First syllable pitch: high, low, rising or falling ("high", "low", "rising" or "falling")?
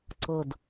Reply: falling